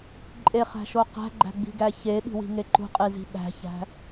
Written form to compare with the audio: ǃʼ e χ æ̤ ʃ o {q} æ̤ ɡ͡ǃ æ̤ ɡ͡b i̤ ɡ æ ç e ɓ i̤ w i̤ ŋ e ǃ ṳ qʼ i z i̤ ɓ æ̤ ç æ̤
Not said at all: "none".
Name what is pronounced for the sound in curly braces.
q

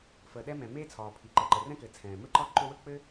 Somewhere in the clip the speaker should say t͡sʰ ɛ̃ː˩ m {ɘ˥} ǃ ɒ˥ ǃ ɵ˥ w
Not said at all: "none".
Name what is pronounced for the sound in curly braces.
ɘ˥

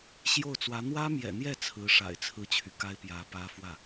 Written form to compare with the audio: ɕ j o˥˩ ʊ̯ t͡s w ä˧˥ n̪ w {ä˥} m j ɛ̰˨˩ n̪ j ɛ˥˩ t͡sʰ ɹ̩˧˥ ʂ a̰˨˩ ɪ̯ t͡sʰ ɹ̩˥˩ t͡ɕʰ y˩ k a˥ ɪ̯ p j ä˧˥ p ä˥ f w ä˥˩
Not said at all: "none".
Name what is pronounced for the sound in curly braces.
ä˥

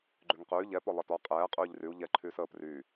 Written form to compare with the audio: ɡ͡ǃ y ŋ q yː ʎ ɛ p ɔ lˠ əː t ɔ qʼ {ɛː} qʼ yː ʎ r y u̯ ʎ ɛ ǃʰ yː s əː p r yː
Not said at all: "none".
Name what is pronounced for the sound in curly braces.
ɛː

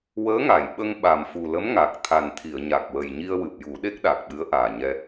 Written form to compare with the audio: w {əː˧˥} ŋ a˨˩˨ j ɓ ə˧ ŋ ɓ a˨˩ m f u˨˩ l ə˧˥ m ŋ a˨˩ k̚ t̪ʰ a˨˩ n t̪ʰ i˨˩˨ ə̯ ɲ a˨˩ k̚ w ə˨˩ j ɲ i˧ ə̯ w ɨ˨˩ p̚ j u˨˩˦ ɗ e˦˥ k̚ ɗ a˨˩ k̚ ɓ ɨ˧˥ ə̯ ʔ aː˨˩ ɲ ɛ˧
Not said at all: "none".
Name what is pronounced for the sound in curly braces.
əː˧˥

